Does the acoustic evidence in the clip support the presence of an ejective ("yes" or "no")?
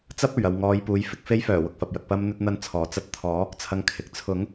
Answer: no